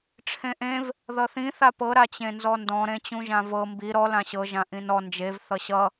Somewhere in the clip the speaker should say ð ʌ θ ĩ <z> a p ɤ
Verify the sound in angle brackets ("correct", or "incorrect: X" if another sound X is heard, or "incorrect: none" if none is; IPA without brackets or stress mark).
incorrect: θ